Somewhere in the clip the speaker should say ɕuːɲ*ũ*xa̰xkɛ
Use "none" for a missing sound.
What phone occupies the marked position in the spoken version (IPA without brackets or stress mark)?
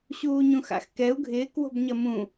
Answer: ũ